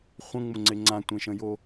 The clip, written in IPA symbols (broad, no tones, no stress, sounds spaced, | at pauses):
χʷ ə̃ ŋ͡m ʊ ŋ͡ǀ e ŋ͡ǀ ã tʷ ẽ ʃ ə̃ j o